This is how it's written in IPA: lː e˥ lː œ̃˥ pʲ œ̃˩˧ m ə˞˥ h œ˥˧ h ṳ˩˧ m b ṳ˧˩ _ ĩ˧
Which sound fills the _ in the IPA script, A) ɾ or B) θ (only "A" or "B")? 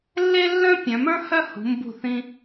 B